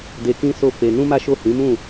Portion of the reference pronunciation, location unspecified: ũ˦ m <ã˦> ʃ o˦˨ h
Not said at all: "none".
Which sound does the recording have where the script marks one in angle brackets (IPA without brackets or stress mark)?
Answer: a˦